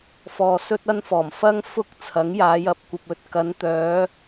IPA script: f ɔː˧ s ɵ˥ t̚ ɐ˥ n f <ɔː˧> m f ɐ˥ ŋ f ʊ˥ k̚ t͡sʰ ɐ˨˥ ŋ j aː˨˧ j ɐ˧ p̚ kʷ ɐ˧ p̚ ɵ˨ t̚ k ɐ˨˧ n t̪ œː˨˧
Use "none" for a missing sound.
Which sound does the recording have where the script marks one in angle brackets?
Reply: ɔː˨˩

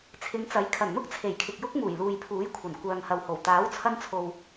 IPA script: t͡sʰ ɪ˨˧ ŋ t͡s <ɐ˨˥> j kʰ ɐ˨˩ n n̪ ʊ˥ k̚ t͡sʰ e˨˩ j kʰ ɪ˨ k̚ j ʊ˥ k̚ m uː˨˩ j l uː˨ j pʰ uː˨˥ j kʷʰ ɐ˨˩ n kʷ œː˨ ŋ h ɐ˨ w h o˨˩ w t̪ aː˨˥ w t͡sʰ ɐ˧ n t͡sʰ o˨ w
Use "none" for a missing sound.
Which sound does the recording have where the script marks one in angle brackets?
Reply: ɐ˨˥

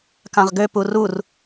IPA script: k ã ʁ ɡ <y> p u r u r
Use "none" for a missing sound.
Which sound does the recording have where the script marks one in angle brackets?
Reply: ø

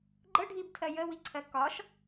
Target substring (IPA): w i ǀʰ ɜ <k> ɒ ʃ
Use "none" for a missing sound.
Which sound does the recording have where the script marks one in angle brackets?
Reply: k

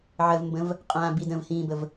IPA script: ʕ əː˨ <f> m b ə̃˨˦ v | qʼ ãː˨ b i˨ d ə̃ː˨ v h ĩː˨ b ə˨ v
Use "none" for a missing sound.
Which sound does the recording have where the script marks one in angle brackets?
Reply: v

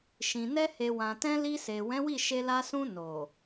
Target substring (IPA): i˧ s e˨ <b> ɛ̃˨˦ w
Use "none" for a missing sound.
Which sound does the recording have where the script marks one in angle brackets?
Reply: w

